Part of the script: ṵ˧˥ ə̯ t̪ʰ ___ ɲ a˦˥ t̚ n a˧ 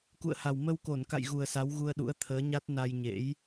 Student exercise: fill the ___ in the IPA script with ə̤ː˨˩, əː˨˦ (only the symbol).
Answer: əː˨˦